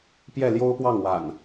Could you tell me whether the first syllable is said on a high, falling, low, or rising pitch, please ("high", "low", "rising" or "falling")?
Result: falling